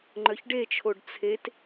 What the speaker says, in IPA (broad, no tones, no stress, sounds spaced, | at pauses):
ŋ͡ǃ œ ç ɖ e t͡ʃʰ o ɖ t͡sʰ e t